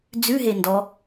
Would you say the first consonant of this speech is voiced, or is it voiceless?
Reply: voiced